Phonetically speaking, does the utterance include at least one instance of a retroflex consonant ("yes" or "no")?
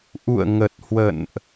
no